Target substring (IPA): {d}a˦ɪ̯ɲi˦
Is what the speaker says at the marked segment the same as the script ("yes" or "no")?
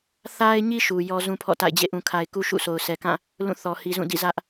no